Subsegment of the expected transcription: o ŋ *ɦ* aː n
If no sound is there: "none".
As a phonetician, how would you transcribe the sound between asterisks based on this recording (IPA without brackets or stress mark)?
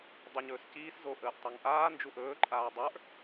ʔ